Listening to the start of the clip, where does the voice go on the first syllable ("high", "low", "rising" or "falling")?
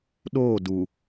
falling